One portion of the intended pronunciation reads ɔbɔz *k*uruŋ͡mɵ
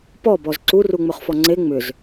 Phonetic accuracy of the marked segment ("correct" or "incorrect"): incorrect